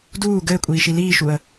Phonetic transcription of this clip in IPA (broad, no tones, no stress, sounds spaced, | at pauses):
d uː ɡ ɘː kʷʼ iː ʃ i l iː ʃ u ə̯